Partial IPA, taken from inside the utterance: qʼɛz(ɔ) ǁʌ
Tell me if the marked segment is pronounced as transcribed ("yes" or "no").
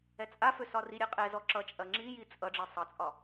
yes